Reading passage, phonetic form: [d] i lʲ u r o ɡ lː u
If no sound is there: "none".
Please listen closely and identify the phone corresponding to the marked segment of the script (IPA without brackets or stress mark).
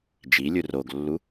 d͡ʒ